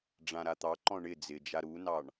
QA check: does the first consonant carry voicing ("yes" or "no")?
yes